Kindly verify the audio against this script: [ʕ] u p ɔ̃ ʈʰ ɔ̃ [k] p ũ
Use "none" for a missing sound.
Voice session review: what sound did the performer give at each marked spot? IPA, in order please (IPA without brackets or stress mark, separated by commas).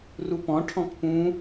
r, k